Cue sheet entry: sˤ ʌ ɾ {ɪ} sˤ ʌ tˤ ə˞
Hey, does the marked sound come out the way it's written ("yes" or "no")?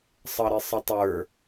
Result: yes